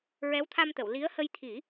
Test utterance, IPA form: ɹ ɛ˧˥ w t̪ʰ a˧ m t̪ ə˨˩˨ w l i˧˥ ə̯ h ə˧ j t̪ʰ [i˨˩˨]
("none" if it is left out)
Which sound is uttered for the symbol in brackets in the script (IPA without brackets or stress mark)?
i˨˩˦